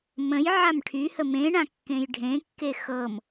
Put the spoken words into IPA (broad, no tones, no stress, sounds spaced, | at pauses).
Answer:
m ə̃ j ʕ a m ʈʰ y h ə m ẽ ɳ ã kː ẽ j ɖʱ ẽ kː e x ɤ m